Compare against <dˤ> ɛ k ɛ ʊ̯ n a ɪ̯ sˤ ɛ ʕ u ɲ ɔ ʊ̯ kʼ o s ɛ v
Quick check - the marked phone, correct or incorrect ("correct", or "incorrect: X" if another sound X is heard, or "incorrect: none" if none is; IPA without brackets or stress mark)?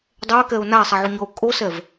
correct